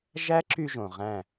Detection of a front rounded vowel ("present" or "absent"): present